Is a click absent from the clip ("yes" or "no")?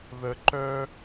no